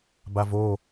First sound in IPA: b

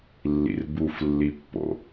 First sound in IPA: lː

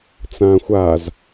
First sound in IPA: t͡s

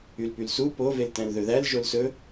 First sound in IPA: y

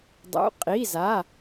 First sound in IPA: dˤ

